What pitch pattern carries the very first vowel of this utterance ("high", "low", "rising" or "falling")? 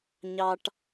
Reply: high